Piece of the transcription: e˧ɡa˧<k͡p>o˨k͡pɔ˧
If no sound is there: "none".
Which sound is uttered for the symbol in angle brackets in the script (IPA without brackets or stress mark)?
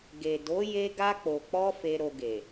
k͡p